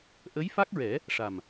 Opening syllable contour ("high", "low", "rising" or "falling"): rising